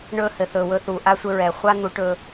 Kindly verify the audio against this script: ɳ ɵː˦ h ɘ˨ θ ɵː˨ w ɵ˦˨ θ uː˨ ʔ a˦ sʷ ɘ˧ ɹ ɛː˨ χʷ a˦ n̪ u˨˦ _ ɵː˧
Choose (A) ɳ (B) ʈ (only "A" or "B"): B